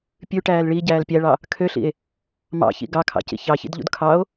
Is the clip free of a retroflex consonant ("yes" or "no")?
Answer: no